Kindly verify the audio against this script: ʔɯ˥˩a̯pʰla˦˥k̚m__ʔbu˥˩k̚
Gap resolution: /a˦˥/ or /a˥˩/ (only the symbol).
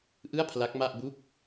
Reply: a˥˩